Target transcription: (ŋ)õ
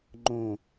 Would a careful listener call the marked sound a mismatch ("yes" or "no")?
yes